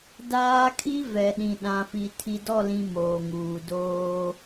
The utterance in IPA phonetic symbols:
d aː˦ kʰ i˦ v ɛ˨ ɗ ĩ˨ ɗ ã˨ f i˨ tʰ i˨ d ɔ˦˨ l ĩ˨ m oː˨ ŋ uː˨ d oː˦

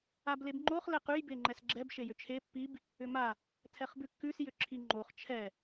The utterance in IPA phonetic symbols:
a b l e b ŋ͡ǃ o χ l ɛ q ʉ j b e ŋ͡ǃ ɛ s ɡ͡ǁ ɛ b ʃ e j ʏ t͡ʃʰ e pː i b | ʏ m a | tʰ ɛ χ b ʉ kː ʉ s j ʏ ǁʰ i ŋ͡ǃ o χ t͡ʃʰ ɛ

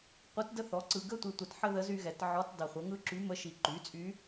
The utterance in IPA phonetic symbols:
qʷ ɯ˧˥ t d ə˥ θ ɔ˩˥ ǀ ɯ˨ ɡ ə˥ tʷ i˨ tʷ ə˨ t ħ ə˥ ð ə˧˥ z y˥ ɣ ɛ˩˥ t ʕ ɔ˧˥ t dˤ i˨ χʷ ə˩˥ ŋ ɯ˥ ǁ y˧˥ m ə˧˥ ʃ i˨ ǃ y˩˥ t͡sʼ y˧˥

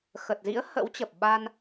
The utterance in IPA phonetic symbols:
x ə˨˩ t̚ z ḭ˧˥ ə̯ h ə̰˧˥ w t͡ɕ ə˨˩ p̚ ɓ a˧ n

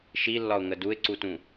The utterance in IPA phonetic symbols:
ʃ i lː ɒ ʊ̯ ŋ ə d u ɪ̯ ǀ u t ũ

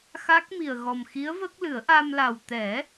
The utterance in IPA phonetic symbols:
x a˦˥ k̚ m i˨˩ ə̯ ɣ ɔ˨˩ m x i˧˥ ə̯ v ə˦˥ k̚ l ɨ˨˩˦ ə̯ ʔ a˧ m l a˨˩ w t̪ ɛ˨˩˦

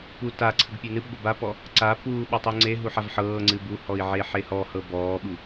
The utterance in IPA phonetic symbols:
p u t a ǀʰ ə ɡ pʲ ɨ n ɨ b ɡʷ ə b a p ɔ | ǀ a p uː ɓ a tˤ u ŋ͡ǀ e ɦ u ħ a v ħ ɤː ŋ͡ǀ ɨ b u h ɔ i̯ ʕ e ħ e h ɔ h ɤ b ɔː ɓ u

